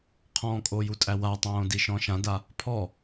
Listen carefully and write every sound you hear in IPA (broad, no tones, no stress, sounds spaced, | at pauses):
qʰ ɔ̃ kʼ o j u tʼ æ w a tˤ õː d i ʃ ɔ̃ ʃ ã d a | pʰ ɔ